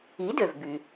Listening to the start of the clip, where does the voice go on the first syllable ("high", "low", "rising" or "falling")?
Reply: rising